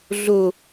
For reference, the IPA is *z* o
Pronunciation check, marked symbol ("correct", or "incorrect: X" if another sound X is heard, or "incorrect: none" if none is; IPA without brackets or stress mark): incorrect: ɮ